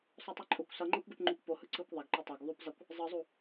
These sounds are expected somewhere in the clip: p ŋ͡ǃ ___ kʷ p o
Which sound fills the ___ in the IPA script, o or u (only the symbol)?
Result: u